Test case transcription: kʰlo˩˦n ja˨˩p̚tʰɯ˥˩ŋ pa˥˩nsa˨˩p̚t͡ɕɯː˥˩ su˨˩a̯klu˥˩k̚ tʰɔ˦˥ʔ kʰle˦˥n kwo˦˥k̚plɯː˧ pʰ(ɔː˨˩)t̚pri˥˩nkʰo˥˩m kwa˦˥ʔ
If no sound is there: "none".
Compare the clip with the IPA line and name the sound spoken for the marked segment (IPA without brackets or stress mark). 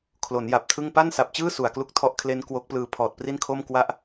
ɔː˨˩